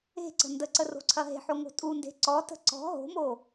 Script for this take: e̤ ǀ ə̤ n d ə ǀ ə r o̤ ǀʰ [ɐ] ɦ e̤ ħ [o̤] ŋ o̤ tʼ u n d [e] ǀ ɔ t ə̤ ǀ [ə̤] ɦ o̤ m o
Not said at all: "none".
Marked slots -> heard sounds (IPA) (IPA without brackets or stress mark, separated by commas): ɐ, o, e̤, ɔ̤